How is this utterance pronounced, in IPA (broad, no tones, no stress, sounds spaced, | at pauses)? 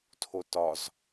tʰ o t ɒ z